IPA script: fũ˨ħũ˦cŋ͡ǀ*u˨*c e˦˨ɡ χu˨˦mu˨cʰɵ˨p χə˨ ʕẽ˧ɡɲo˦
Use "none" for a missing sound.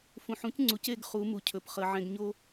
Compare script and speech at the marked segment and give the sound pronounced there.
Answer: u˨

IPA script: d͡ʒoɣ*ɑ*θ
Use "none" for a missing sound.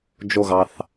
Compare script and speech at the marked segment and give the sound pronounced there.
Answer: ɑ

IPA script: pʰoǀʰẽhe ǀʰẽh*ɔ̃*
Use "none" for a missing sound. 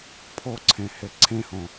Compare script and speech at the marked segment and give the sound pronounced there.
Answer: õ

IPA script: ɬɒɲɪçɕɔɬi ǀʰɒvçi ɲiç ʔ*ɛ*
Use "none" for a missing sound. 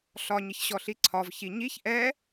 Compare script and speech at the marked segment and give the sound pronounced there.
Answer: ɛ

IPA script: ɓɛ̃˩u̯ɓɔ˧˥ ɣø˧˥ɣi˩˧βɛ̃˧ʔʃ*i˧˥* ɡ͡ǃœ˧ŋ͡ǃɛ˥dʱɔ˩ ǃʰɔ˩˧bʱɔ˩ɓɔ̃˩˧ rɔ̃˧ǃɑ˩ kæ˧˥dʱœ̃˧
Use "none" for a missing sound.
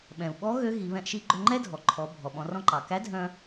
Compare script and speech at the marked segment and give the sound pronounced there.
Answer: i˧˥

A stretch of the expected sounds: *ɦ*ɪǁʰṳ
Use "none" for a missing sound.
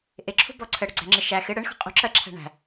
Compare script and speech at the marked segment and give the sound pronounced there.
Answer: ʔ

